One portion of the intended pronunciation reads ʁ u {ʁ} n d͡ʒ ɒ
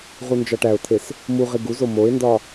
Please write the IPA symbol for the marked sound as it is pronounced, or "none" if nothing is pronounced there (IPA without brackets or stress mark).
none